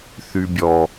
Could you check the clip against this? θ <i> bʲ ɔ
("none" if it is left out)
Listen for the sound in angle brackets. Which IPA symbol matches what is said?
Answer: y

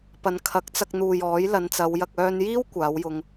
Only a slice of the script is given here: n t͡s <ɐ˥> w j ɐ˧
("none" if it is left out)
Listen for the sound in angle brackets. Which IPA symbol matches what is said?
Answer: ɐ˨˧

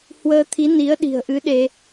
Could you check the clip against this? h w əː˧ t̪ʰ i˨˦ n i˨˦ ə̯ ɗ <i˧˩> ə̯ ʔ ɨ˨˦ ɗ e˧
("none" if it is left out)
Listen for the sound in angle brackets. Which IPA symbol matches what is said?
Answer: i̤˨˩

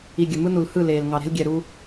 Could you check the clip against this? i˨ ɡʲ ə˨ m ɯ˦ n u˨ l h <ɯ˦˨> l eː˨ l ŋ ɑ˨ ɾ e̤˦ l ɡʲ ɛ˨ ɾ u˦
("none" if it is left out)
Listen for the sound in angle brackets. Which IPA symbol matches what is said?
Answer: ɯ˦˨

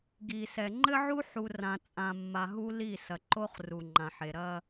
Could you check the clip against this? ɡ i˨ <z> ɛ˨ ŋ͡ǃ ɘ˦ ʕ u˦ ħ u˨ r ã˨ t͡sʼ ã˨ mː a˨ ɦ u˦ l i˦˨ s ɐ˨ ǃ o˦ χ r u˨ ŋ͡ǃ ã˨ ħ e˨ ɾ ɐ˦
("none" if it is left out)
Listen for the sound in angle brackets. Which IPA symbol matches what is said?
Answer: s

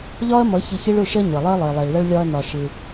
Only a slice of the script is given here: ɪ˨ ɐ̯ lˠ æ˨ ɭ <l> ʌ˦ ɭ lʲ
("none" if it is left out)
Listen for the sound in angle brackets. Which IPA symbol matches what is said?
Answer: l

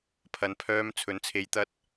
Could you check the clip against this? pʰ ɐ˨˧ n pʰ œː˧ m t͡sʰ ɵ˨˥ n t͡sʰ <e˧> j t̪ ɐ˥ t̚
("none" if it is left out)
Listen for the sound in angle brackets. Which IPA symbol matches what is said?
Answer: e˧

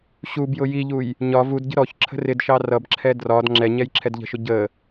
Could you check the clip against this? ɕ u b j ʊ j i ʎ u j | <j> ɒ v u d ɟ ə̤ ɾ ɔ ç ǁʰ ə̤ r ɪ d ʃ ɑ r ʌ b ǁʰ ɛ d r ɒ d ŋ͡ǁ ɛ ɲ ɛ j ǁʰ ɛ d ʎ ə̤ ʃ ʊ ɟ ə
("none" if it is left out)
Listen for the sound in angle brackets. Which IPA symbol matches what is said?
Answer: ɲ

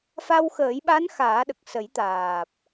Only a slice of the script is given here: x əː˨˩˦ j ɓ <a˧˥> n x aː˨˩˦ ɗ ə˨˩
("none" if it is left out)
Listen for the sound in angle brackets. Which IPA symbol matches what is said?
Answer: a˧˥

